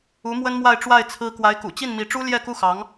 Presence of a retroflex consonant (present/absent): present